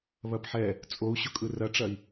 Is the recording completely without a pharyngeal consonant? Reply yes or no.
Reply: no